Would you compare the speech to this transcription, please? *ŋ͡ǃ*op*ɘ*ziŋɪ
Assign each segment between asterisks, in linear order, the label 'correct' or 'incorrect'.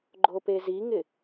incorrect: ɡ͡ǃ, incorrect: e

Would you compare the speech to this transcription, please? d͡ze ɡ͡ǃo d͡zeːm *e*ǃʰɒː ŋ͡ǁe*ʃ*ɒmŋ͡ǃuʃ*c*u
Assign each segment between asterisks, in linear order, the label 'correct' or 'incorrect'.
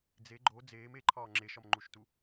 correct, correct, incorrect: t

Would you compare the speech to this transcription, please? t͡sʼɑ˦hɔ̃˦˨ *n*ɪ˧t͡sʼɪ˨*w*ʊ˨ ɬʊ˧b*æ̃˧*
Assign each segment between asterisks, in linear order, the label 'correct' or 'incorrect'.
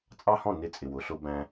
correct, correct, correct

